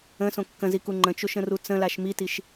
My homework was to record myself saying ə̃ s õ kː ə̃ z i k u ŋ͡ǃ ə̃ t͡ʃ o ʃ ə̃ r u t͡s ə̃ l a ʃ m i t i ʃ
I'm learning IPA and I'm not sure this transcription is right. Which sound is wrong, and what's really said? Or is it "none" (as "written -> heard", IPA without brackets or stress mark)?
none